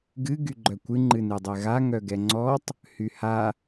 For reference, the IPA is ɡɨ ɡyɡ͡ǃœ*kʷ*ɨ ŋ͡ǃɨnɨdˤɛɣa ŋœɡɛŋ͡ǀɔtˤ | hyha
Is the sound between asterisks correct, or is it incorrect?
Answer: correct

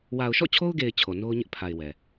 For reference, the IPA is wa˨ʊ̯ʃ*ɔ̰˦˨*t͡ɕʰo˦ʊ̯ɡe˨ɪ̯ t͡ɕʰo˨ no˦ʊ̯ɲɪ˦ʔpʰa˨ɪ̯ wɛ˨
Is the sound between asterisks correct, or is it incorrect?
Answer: correct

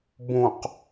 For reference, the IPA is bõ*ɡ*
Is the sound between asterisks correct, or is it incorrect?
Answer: incorrect: q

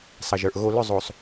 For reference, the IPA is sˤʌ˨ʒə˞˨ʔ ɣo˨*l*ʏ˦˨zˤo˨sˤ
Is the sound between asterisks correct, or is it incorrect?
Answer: correct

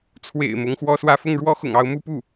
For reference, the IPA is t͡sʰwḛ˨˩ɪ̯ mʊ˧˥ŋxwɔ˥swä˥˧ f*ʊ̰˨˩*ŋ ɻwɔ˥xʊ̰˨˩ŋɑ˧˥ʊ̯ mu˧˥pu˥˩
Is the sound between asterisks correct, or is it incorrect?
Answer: incorrect: ʊ˥˩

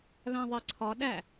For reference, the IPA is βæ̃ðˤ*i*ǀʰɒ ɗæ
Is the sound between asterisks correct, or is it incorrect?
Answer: correct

